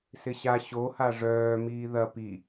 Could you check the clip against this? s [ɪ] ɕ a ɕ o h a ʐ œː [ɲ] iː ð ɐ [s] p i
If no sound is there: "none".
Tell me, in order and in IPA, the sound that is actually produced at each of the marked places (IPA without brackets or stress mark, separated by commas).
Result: ɪ, m, none